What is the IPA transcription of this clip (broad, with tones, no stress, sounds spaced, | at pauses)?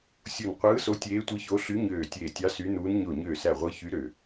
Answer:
sʲ u˧˩ n qʷ ɯː˧˥ s o˧˥ tʲ eː˧˥ tʷ ɯ˧˥ ç o˧˥ ɬ y˧˥ ɲ øː˧˩ tʲ eː˧˩ tʲ ɑ˧˥ s y˧˥ n uː˧˥ n ɲ o˧˩ ɲ øː˧˩ s æ˧˩ ʁʷ ɯ˧˥ ç y˧˥ ɾ ø˧˩